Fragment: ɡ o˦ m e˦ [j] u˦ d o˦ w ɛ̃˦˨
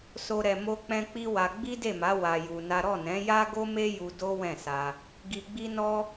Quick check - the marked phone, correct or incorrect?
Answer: correct